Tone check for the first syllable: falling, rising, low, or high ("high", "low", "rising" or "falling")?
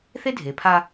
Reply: high